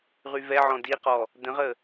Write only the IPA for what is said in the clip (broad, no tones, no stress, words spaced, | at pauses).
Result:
ʁyvɛʕɔ̃ diqɔ | də̃ʁə